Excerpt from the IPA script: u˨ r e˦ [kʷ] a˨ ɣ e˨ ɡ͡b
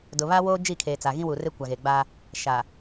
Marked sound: correct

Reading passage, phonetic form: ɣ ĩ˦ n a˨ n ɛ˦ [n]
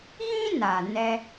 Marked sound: incorrect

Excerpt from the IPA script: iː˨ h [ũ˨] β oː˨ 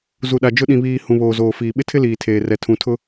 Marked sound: correct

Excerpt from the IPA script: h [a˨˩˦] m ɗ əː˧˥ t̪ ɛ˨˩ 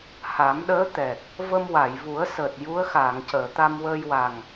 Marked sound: correct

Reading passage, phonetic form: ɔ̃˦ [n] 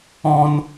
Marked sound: correct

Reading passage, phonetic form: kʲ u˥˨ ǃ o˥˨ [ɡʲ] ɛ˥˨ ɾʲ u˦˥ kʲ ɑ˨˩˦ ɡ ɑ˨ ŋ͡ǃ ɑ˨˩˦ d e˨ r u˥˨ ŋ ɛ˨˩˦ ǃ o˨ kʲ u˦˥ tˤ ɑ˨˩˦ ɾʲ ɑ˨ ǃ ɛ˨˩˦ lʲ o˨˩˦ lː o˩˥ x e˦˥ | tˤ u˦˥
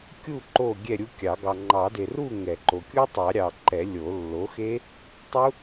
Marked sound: correct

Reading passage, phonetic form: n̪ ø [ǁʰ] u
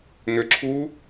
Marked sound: correct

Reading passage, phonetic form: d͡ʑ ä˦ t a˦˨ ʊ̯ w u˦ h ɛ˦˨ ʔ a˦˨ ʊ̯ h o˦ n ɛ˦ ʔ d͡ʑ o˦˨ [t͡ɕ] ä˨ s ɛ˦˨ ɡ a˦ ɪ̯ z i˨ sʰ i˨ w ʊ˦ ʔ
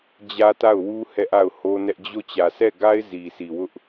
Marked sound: correct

